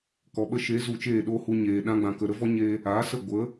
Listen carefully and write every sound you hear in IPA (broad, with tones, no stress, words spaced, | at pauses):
kɔ˨ɓə˧ ʃe˨˦zu˨ t͡ʃeː˦˨ɗoː˦hu˧ɲeː˨ ɗã˧ɡ͡bã˨kə˨ ɾə˦vɔ˦ɲe˧ | a˨˦sə˦˨ ɡʷə˨˦